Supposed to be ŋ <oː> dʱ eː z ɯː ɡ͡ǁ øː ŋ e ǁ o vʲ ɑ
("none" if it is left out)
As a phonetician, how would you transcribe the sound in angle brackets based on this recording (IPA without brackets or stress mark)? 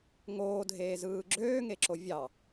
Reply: oː